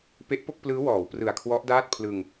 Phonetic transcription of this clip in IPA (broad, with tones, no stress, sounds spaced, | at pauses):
p e˦˥ ʔ p o˥˩ k̚ p l ɯː˦˥ w ɔː˩˦ w p r ɯ˨˩ a̯ kʰ w ɔ˦˥ ʔ d aː˥˩ t̚ pʰ l ɯ˧ ŋ